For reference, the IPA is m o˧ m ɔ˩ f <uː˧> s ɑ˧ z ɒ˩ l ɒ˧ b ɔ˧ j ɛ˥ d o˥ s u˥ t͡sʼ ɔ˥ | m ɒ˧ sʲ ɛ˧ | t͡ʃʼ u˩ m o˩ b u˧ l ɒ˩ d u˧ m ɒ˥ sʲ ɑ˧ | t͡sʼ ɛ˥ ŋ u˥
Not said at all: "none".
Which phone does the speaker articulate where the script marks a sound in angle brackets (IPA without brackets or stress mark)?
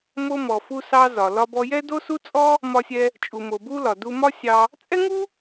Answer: u˧